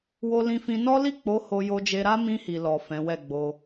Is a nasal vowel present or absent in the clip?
present